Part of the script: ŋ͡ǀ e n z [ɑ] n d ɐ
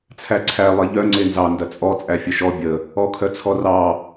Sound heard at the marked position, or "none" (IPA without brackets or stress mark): ɑ